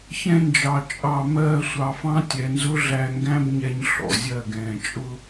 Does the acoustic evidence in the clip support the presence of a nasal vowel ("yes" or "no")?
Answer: yes